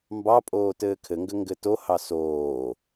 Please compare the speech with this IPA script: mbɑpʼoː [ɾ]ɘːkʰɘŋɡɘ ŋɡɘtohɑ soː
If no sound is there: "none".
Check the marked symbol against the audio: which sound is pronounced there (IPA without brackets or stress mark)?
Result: t